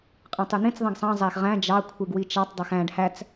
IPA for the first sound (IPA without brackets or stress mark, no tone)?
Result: qʼ